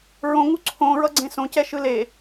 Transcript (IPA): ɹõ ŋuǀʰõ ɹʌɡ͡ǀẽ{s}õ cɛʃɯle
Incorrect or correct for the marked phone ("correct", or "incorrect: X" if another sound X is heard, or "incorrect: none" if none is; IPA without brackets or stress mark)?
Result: correct